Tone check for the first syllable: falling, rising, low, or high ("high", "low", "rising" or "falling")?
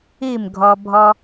falling